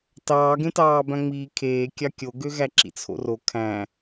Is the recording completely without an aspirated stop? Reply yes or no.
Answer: no